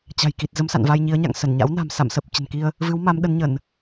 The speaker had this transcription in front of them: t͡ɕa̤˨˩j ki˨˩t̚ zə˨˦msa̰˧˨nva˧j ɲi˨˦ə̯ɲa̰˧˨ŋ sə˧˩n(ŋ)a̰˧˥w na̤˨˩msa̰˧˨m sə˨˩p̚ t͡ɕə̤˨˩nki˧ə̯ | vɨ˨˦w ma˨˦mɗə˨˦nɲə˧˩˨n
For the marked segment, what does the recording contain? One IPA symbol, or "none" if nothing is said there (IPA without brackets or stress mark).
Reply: ɲ